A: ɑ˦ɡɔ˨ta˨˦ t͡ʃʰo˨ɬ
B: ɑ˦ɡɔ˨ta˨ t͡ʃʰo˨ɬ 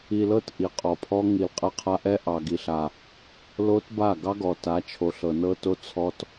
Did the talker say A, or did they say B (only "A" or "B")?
A